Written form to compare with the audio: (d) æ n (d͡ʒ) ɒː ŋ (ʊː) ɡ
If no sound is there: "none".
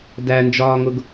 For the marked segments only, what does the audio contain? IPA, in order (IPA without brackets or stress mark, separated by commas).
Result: d, d͡ʒ, ʊ